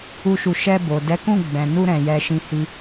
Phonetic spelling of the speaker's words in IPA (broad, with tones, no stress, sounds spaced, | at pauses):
u˦ ʃ u˧ ʃ ɛ˧ b o˨ d ɛ˨˦ k ũ˦˨ ɡ͡b ɛ̃˨ n u˧ ɾ ɛ̃˨ j ɛ˧ ʃ ĩ˧ h i˦